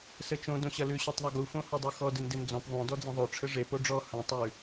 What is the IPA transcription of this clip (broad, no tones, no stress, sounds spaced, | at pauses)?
s ɘ t͡ʃ õ d õ ɕ ɐ l ʉ ɕ o tˤ ðˤ ɐ ɡ u f õ h o dˤ o x ɔ d ɘ n d e n d͡z ɔ̃ p ðˤ õ d ɔ d͡z ɐ̃ ðˤ o ʈ͡ʂʰ ɘ ʐ e p o ɖ͡ʐ ɔ h ɐ̃ tˤ ʉ